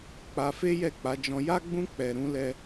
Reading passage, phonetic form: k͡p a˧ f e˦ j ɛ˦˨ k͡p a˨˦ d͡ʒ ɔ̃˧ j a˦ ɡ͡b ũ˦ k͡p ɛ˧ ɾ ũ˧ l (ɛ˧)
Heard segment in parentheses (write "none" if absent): ɛ˧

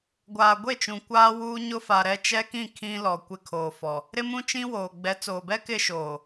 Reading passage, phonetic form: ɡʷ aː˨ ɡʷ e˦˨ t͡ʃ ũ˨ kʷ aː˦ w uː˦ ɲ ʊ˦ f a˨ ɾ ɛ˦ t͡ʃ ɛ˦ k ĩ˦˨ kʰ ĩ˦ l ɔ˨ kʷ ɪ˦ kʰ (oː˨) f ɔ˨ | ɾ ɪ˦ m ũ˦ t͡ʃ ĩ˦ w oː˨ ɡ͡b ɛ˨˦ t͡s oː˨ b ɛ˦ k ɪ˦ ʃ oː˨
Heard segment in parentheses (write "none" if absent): oː˨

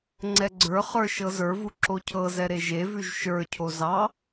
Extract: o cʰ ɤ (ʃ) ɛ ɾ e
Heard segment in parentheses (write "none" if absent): z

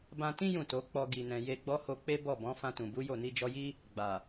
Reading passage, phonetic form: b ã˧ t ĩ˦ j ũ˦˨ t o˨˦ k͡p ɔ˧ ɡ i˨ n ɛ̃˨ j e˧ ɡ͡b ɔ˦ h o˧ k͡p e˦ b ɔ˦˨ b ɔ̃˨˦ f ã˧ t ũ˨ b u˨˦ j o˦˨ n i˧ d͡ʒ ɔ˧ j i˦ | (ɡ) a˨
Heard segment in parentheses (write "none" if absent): ɡ͡b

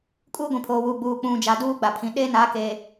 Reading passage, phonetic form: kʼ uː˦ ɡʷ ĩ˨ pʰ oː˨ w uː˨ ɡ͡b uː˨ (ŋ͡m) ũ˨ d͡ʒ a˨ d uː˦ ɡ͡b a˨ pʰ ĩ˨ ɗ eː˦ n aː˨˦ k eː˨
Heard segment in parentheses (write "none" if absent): k͡p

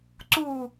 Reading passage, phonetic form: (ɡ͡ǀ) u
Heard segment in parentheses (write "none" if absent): ǀ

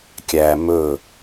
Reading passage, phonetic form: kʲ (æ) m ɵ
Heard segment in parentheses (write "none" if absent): æ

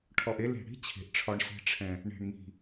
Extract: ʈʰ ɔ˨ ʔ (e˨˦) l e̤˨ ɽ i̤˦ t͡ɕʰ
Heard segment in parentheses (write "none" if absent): e˧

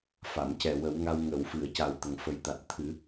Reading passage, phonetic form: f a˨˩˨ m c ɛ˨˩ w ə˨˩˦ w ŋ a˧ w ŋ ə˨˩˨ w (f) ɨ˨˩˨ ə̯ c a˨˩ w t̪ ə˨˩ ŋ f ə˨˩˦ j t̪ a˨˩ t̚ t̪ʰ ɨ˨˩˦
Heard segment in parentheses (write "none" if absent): f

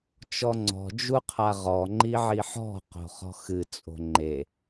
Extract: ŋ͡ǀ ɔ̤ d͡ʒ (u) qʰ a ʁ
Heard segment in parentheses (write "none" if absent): u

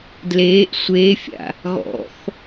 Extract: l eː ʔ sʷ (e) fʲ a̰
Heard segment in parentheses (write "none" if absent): eː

